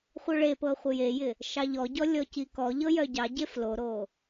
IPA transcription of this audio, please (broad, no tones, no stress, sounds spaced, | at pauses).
χʷ œ ɭ e p ɤ χʷ ɪ j e j ɪ | ʃ ɑ ʎ ɔ ɟ ɔ lʲ ɔ c i k ɔ ʎ ɤ j œ ɟ ɑ ɟ e f l o ɾ o